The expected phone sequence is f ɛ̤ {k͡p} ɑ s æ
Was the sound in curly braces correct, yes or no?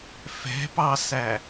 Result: no